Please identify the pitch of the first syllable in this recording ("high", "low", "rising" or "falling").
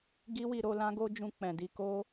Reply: high